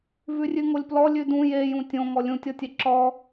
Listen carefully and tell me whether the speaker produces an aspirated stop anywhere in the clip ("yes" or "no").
no